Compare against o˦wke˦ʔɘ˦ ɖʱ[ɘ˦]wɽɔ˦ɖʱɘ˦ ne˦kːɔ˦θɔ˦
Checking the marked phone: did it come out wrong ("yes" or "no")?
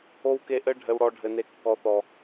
no